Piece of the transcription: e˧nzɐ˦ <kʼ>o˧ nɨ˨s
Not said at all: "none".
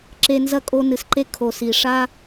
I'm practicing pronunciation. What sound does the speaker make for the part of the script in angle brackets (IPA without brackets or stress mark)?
kʼ